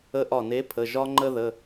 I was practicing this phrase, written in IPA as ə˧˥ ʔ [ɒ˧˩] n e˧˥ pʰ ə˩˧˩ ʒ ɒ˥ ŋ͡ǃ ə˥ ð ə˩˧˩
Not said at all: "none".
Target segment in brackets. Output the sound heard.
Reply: ɒ˧˩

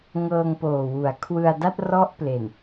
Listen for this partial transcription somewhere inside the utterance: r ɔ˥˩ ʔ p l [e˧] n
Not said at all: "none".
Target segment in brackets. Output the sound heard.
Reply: e˨˩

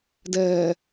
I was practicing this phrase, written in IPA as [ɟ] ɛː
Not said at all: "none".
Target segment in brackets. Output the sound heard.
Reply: d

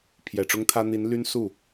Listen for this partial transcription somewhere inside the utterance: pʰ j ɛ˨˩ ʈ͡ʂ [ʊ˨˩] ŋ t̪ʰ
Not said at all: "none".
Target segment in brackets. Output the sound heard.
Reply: ʊ˥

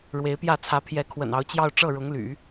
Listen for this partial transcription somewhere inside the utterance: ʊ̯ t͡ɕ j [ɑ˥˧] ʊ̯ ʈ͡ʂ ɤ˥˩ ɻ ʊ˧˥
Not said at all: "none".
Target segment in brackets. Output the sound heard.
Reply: ɑ˥˧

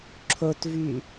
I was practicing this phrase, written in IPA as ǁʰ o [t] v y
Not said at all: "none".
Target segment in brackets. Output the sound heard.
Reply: t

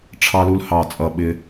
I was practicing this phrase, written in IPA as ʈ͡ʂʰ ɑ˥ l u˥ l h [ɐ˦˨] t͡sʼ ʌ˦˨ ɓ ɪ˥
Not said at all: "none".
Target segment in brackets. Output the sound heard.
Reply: ɑ˦˨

